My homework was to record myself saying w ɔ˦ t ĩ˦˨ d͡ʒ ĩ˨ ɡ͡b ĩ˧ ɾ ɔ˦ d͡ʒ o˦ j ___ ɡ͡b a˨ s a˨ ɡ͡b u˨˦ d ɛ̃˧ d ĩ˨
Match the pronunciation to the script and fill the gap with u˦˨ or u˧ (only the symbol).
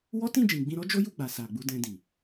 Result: u˦˨